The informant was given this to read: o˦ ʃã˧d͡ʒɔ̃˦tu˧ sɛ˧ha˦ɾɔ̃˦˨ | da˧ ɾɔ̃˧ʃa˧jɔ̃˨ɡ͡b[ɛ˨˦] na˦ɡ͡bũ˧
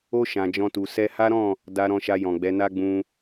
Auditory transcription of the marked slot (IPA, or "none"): ɛ˨˦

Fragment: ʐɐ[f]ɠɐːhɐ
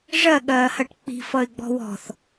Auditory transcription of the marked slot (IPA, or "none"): none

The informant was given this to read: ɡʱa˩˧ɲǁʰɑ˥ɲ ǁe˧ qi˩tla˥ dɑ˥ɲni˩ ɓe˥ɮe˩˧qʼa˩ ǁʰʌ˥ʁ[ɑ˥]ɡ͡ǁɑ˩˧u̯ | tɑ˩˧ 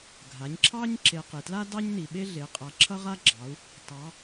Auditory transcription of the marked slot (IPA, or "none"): a˥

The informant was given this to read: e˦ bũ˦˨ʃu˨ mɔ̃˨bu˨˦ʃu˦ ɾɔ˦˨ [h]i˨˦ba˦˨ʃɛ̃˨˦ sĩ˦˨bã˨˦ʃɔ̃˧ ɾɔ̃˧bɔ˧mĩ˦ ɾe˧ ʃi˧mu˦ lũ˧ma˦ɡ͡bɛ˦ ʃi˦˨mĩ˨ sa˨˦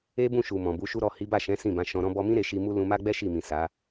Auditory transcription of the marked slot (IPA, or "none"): h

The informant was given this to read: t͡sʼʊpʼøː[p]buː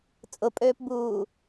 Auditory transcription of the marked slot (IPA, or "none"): p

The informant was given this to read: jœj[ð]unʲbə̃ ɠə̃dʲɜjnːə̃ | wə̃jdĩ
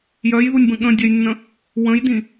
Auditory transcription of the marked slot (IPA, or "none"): ð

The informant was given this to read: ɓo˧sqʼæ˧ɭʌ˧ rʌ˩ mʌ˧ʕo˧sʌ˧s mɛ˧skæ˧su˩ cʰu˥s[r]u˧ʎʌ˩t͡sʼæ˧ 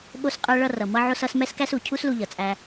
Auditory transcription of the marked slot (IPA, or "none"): l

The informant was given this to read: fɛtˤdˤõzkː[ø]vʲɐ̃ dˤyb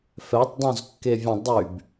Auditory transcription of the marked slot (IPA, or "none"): e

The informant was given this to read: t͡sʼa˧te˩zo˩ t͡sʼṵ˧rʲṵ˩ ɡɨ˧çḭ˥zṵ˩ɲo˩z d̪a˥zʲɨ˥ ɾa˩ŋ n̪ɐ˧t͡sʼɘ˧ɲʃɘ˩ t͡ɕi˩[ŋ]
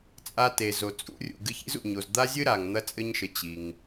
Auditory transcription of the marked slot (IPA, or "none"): ŋ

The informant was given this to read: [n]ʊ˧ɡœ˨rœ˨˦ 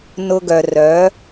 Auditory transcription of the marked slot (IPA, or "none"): n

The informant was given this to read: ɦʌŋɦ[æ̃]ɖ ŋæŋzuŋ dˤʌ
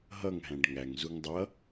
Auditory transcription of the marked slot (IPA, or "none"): æ̃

